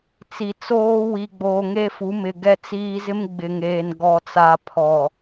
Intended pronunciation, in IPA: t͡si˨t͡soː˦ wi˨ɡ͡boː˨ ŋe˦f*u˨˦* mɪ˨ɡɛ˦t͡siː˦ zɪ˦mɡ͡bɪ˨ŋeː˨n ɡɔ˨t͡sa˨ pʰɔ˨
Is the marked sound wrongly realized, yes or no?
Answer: no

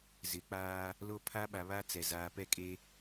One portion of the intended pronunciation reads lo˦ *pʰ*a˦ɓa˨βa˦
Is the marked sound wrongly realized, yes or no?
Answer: no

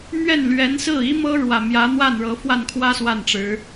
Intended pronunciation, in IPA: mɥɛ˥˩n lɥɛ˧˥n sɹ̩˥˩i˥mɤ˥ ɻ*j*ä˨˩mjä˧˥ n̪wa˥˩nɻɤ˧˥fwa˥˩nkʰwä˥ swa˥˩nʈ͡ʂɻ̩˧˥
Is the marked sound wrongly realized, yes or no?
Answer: yes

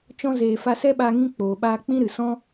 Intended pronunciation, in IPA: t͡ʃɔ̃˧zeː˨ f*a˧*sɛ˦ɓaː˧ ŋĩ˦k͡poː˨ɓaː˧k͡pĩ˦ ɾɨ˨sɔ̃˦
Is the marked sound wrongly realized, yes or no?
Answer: no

